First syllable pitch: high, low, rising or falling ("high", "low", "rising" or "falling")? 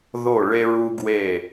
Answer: falling